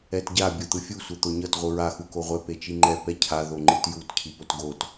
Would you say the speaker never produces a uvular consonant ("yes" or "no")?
no